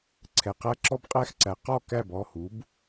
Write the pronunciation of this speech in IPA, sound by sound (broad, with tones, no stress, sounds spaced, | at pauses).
ǀʰ ɛ˩ q æ˥ ǁ ɔ˥ b qʼ æ˥˧ x ǀ æ˩˥ q ɔ˥˧ k æ˥˩ b ɔ˩˧˩ h u˩˥ b